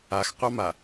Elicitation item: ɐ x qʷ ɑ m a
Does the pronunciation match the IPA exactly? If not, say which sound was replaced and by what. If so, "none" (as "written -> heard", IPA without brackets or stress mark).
ɐ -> a